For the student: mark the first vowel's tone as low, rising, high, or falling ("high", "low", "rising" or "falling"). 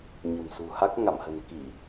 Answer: low